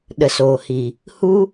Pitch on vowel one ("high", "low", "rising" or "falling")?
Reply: low